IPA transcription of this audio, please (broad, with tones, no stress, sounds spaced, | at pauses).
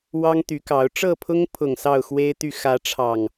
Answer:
w ɑ˦ ŋ t̪ y˨˦ k ɑ˨˦ ʊ̯ ʈ͡ʂ ɤ˥˨ pʰ ʊ˦ ŋ pʰ ʊ˨˩ ŋ s ɑ˥˨ ʊ̯ x w e˦ ɪ̯ t̪ y˥˨ x ä˨˦ ʈ͡ʂʰ ɑ˨˩ ŋ